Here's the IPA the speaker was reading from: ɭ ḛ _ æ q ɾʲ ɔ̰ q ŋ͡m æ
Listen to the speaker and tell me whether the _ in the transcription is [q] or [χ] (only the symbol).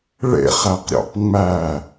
χ